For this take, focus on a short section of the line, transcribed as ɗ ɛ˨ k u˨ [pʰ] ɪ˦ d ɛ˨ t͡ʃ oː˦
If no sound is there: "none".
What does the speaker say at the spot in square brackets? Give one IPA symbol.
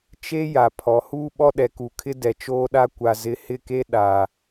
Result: kʰ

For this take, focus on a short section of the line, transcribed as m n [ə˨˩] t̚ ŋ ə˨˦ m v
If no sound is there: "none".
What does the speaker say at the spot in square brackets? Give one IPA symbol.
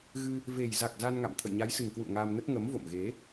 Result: ə˦˥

